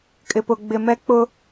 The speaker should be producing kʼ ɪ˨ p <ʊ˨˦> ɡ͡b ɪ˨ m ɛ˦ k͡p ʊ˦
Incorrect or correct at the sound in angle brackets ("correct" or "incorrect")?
incorrect